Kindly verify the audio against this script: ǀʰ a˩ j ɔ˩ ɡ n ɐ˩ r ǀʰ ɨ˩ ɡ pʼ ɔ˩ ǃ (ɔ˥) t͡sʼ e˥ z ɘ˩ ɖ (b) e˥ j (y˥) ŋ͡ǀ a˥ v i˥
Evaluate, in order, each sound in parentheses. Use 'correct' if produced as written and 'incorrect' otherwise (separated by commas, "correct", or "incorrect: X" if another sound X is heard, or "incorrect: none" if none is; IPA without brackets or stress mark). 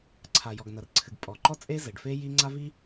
correct, incorrect: f, incorrect: i˥